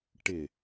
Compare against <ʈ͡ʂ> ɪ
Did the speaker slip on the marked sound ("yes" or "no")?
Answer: yes